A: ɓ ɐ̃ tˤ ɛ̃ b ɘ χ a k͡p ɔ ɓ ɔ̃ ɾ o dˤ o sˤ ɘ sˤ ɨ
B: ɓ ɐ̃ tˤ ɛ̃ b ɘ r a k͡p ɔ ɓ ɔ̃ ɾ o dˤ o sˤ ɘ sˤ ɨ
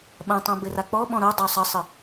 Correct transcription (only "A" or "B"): B